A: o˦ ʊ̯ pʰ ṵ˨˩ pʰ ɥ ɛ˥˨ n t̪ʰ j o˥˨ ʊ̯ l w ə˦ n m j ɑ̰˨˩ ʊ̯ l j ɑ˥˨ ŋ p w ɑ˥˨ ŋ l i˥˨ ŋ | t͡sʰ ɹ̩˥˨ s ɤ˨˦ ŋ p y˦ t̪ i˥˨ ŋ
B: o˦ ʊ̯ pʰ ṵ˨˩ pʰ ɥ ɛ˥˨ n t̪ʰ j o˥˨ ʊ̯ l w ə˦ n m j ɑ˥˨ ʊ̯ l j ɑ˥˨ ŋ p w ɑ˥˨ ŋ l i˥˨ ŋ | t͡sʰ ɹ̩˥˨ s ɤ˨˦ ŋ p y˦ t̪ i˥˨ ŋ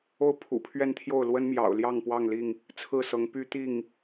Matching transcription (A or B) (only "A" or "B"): A